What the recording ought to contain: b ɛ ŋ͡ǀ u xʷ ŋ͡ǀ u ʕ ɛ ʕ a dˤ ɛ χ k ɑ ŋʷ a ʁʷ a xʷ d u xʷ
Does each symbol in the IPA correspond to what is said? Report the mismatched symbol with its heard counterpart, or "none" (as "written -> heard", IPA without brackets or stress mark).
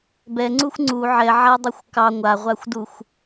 χ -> xʷ